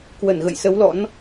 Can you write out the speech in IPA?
k w ə˧˩ n ɣ ə̰˧˨ j s ə˨˦ w l ɔ̰˧˥ n

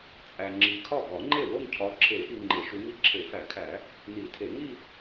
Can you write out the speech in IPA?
t͡sʼ æ˨ ŋ͡ǁ i˨ kʰ ɒ˥˩ ɡ ɒ˨˩˦ ŋ͡ǃ e˥˩ w o˥˧ ŋ cʰ ɒ˨˦ ǁʰ e˨˩˦ ʔ i˨ ŋ͡ǃ e˨˩˦ ʃ u˨˦ ŋ i˥˩ ǁʰ e˨˩˦ f æ˨˩˦ kʰ æ˨˩˦ | n i˨˩˦ tʰ e˨˩˦ ŋ i˥˧

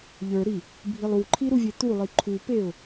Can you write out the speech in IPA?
ʎ ə˞ ɾ i | bʱ i lˠ u ǃʰ i ɾ u vʲ e t̪ u lˠ i ǃʰ u p e ʊ̯

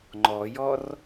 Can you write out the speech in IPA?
ŋ͡ǃ ɔ j ɔ r

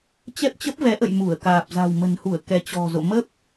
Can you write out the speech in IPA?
t͡ɕ ɛ˦˥ p̚ t͡ɕ ə˦˥ p̚ v ɛ˨˦ ʔ ə̰˧˨ j m u˧˩ ə̯ k aː˨˩ p̚ z a̤˨˩ w m ə̤˨˩ n h u˧˩ ə̯ k ɛ˨˦ t͡ɕ ɔ̤˨˩ z o̰˧˨ m ə˦˥ p̚

